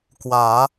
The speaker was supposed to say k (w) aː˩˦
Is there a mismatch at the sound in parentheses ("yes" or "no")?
no